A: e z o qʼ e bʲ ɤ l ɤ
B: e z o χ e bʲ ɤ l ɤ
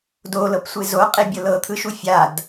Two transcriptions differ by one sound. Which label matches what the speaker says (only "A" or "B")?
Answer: A